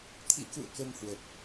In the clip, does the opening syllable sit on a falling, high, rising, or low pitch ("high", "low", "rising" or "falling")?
rising